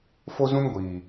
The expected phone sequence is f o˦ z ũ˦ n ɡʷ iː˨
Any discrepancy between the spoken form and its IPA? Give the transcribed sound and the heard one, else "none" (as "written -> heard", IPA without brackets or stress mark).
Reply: none